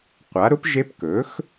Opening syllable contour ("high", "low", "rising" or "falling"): rising